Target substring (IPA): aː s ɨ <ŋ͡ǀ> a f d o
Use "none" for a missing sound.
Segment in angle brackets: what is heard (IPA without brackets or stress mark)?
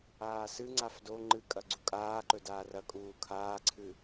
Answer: ŋ͡ǀ